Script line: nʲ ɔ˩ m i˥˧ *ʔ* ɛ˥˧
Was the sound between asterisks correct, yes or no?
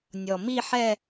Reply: no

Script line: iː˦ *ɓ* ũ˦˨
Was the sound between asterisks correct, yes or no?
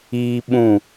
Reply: yes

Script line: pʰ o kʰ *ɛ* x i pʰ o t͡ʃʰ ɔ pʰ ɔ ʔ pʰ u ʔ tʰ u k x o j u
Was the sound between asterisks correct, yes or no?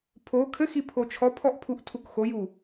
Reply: no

